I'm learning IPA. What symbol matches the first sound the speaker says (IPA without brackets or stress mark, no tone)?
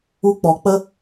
u